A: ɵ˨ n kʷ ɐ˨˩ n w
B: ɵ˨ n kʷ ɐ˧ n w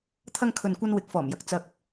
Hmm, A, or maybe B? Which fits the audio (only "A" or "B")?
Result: B